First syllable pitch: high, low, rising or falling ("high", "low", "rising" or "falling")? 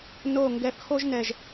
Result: low